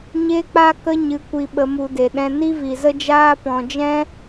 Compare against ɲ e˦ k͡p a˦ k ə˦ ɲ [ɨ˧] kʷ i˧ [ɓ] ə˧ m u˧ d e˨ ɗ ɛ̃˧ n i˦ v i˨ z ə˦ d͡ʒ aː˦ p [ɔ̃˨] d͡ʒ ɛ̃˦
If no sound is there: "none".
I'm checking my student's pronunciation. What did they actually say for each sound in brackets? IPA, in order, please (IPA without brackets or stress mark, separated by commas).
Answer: ɨ˧, ɓ, ɔ̃˨